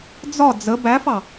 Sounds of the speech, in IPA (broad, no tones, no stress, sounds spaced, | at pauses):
d͡z ɒ d͡z ə b æ f ɑ